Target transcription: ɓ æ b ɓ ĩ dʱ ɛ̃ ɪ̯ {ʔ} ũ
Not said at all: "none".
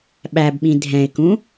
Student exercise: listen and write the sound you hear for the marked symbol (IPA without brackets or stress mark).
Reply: k